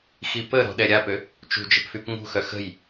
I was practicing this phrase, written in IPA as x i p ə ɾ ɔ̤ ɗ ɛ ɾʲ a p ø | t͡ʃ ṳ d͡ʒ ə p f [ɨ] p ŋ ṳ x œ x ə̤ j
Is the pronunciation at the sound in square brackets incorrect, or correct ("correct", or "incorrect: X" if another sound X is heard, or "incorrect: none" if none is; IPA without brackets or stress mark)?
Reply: incorrect: y